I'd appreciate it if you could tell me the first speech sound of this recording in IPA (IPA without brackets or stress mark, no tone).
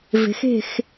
v